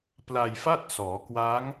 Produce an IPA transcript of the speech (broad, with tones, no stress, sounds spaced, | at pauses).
p l a˧ j f a˥˩ t̚ s ɔː˩˦ k w a˦˥ ŋ